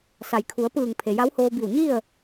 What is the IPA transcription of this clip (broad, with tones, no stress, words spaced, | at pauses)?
sa˩jkʰu˩˧ə̯pɯː˧˩ŋ pʰe˩ja˧˥whoː˧bi˧˩w ɲi˥˨ə̯